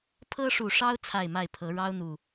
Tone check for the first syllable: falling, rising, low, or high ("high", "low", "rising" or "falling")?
high